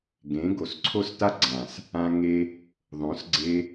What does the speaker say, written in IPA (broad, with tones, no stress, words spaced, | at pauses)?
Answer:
ɡẽ˨˦ ɡo˨sǀʰo˦sta˦ɡ͡ǀã˨s | ã˧ ŋe˧ | ðˤõ˨˦s ɡ͡ǀe˧